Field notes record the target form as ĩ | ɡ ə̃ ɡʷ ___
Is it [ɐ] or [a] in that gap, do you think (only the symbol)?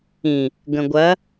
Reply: ɐ